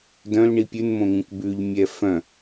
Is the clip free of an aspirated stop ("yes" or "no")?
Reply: yes